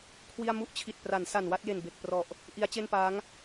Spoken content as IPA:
kʰ w i˥˩ a̯ m u˥˩ ʔ t͡ɕʰ i˨˩ t̚ p r a˩˦ n s a˨˩ n w a˥˩ t̚ j e˨˩ n b e˨˩ k̚ p r ɔ˨˩ ʔ | ʔ i˦˥ a̯ t͡ɕ e˥˩ n p aː˦˥ ŋ

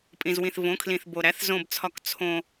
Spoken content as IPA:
pʼ ĩ˨ z w ĩ˨ θ v õ˨˦ kʰ l ĩ˨ θ b o˨ ɾ æ˨˦ θ z õ˨ b t͡sʰ ɒ˨ k t͡sʰ õ˨

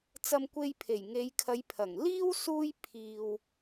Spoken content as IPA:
t͡s ɐ˧ m kʷ e˧ j pʰ e˨˩ j ŋ e˨˧ j kʰ ɐ˨˧ j pʰ ɐ˨˩ ŋ l iː˥ w s uː˥ j pʰ iː˧ w

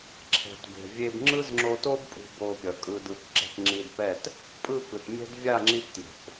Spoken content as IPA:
ǁʰ ɛ̤˨ t b e̤˨ vʲ e˧ b ŋ͡ǁ ɯ˦ z ŋ͡ǁ o˧ t o˦ b pʼ ṳ˧ b o˧ pʲ ʌ˨ kʼ ɯ˧ d ɯ˧ k ǁ ɛ̤˧ k ŋ͡ǁ i˧ d p ɛ˦˨ t | pʼ ɯ˦˨ k ɯ˨ t mʲ ɛ̤˦ d vʲ a˦˨ ŋ͡ǁ i˧ p t j o̤˨ k

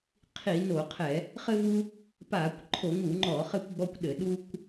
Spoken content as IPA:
qʰ i˧˩˧ n o˧˩˧ qʰ ɛ˧˩˧ | χ ɘ˦ v u˦ | p aː˧˩˧ kʷ ǃʰ o˧˩˧ ŋ u˧˩˧ ŋ͡ǃ ɔː˧˩˧ χ ɘ˦ kʷ ɡ͡b ɔ˦ kʷ ɗ ɘ˧˩˧ ɗ u˦ kʷ

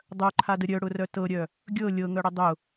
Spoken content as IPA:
dˤ œ ǃʰ a d ə ɾʲ œ ɽ ʊ r œ t ɤ ɾʲ œ | ɡʲ ɤ lʲ ɤ ŋ œ ɽ ə dˤ ʊ

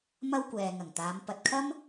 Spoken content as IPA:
m ɐ˥ w kʷ ɛː˨ ŋ ɐ˨˩ ŋ t̪ aː˨˧ m p ɐ˨ t̚ kʰ ɐ˥ m

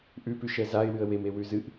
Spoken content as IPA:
ʔ ʉ p ʉ ʃ ɛ z a ɪ̯ w ɨ ə̯ w e m e w ʉ z ɨ ʔ

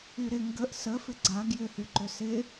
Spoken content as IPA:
y ɾ ɪ ŋ ɡ ə ʔ s ə f ɪ ɡ͡ǀ a ɡ j ʏ h y ǃ ʏ s ɪ

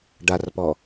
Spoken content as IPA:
ɖ a r p ɔ

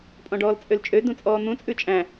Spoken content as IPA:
pʼ ɔ̃ ɖ ɔː l t͡sʼ ø l t͡ʃʼ ø d ũ t͡sʼ ɔː n̪ ũ t͡sʼ ʉ t͡ʃʼ æ̃

